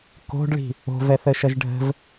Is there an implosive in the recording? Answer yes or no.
no